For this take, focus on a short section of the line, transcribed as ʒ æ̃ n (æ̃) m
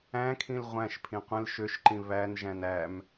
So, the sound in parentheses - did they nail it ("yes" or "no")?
no